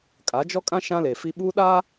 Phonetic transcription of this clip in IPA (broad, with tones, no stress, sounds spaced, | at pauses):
kʼ a˨˦ d͡ʒ ɔ˦ kʼ ã˦ ʃ ã˦ l e˨ f i˦ ɓ u˦ ɗ a˦